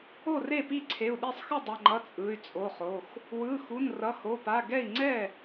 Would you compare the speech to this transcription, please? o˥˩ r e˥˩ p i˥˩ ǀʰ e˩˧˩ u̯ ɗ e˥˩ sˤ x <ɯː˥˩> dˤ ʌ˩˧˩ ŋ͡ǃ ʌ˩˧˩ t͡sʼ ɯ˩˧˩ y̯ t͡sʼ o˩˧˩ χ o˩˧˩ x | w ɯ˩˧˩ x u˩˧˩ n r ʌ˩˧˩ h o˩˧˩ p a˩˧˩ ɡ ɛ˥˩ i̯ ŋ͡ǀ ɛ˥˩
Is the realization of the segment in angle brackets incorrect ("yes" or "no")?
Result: yes